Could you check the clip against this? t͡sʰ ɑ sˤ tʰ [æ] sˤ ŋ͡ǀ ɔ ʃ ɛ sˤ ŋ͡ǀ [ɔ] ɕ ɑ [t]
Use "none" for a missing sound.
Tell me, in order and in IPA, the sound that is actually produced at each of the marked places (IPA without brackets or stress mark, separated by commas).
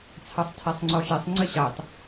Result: æ, ə, t